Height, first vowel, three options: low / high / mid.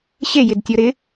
mid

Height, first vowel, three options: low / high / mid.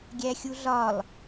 low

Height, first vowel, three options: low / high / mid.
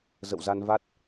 mid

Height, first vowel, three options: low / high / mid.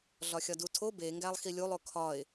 low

